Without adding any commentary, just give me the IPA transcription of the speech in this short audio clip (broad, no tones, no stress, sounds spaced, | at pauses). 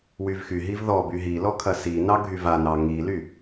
w y v x y ɦ i v ð ɔ b y ɦ i l ɔ kʰ ɐ s i n ɑ ɡʱ y v a n ɑ ŋ i l y